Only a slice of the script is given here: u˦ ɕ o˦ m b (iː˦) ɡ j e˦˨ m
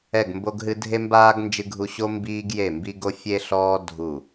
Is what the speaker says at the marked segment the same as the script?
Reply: yes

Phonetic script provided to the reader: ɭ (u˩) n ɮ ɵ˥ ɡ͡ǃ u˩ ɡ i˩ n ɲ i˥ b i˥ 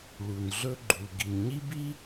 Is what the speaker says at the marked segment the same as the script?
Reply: yes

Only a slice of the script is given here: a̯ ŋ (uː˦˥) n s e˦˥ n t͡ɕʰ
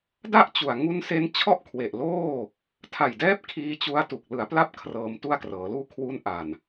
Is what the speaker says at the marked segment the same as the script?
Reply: no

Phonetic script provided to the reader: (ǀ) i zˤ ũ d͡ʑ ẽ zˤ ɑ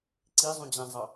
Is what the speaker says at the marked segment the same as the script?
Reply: yes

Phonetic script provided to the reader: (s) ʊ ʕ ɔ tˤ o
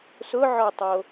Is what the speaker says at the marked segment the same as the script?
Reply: yes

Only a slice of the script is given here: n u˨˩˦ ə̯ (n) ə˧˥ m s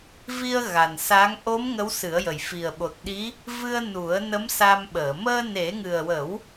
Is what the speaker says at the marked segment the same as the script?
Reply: yes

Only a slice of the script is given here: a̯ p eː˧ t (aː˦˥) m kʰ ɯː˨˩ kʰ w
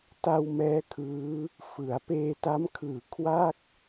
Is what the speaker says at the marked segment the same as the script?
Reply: no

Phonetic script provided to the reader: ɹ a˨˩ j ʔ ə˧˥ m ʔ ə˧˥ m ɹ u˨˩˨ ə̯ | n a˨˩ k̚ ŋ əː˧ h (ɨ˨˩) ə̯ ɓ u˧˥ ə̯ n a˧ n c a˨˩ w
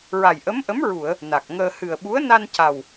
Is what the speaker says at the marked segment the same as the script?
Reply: yes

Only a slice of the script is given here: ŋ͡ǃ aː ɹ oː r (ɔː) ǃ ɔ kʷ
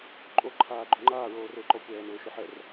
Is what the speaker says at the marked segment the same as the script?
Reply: no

